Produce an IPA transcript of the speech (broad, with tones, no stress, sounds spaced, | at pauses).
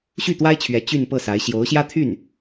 ɕ y˥˩ t̪ w a˥ ɪ̯ t͡ɕʰ ɥ ɛ˧˥ t͡ɕ y˥˧ n p ɤ˥˩ s a˧˥ ɪ̯ ɕ j o˧˥ ʊ̯ ɕ j ä˥ t̪ʰ y˥˩ n